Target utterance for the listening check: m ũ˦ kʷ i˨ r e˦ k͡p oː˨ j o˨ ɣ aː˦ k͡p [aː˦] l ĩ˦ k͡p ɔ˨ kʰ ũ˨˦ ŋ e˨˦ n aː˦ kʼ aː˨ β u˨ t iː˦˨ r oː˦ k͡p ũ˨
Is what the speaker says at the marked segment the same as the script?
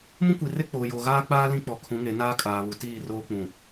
yes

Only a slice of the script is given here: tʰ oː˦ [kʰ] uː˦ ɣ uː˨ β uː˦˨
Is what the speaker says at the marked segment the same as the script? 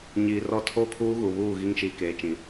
yes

